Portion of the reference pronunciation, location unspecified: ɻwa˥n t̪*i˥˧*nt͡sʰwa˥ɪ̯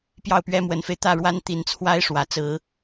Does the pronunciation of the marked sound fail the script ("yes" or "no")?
yes